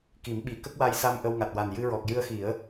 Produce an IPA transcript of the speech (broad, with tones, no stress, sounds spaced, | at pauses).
k i˨˩˦ m ɓ i˨˩˦ k ə˦˥ k̚ w a˧ j s a˧ m ʔ ə˧ w ŋ a˨˩ t̚ w a˨˩ n j ɨ˧ ɹ ɔ˨˩ k̚ j ɨ˧ ə̯ x i˨˩˦ ə̯